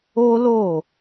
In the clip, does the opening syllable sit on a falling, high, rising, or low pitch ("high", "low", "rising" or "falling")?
high